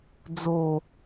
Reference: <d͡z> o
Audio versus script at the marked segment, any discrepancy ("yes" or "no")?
no